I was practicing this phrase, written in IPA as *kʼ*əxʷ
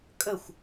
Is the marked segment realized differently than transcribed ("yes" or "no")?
no